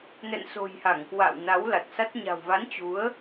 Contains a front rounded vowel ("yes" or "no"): no